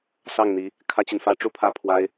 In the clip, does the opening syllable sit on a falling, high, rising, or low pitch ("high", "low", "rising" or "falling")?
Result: falling